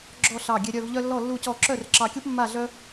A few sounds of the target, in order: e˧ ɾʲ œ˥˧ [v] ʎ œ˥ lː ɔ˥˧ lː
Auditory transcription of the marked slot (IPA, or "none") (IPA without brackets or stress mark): v